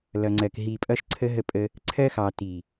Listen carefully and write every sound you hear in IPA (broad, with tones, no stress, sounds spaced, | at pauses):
l ʌ˨ ŋ͡ǀ ɜ˨ k ɦ i˨ pʼ ʌ˦ ʃ ǀʰ ə˦ ɦ ə˦ pʼ ə˦ | ǀʰ ɜ˦ x ɑ˨ t i˨